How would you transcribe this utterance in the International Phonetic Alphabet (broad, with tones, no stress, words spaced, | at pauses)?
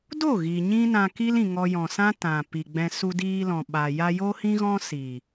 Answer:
do˦˨ɣi˨ ɲĩ˦nã˧ki˦l ĩ˧ŋɔ˦jɔ̃˧ sã˦ tã˨ pi˨ɡ͡bɛ̃˧ su˧diː˧lɔ̃˨ ɓa˨ ja˧jo˦ hĩ˦ɣɔ̃˦si˨